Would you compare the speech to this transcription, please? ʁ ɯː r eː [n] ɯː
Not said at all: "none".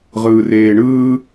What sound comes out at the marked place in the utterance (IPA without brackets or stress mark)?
ɳ